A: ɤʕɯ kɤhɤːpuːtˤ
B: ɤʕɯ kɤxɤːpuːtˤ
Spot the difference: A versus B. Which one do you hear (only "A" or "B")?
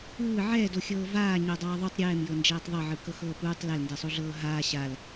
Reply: B